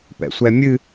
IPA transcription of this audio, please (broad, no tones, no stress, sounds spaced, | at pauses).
p ɛ̰ sʷ ɛ mʲ ɨ